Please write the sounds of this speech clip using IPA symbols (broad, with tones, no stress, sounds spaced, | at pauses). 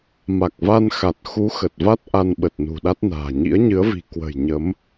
m a˨˩ k̚ v a˧ n x a˨˩ t̚ x u˨˦ x ə˨˩ t̚ v a˦˥ t̚ ʔ a˧ n ɓ ə˨˩ t̚ n ṳ˨˩ ɗ a˦˥ t̚ n a̤ː˨˩ ɲ ḭ˧˥ ə̯ ɲ ɨ˨˦ ə̯ v i̤˨˩ k w ə̤˨˩ j ɲ ə˨˦ m